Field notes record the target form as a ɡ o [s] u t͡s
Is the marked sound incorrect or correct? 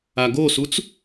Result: correct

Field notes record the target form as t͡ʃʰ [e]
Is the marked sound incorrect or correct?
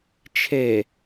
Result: correct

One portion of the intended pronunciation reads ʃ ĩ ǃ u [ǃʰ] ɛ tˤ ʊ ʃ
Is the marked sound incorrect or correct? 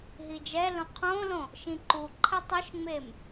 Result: correct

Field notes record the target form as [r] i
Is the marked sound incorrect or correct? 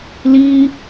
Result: incorrect: l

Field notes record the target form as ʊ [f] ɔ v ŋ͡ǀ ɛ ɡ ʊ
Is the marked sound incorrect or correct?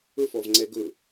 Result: correct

